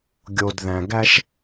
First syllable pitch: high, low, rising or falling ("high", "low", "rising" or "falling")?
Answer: low